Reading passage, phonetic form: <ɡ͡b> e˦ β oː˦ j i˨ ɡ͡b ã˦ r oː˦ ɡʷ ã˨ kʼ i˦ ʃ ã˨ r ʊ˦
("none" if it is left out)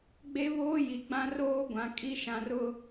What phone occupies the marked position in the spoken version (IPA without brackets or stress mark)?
ɡ͡b